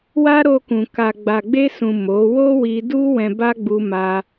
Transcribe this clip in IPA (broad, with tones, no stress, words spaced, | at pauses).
wa˦ɾo˧kũ˨ ka˨ ɡ͡ba˨ɡ͡be˧sũ˨ mo˨˦ wo˦wi˧du˦ wɛ̃˧ba˦ɡ͡bu˧ ma˧